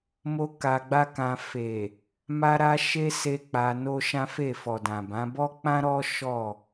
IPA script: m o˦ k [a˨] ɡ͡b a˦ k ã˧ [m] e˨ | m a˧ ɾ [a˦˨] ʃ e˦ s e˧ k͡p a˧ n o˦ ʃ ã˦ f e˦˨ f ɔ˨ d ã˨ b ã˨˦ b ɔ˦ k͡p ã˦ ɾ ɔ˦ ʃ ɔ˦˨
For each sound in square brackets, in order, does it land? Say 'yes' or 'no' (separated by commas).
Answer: no, no, no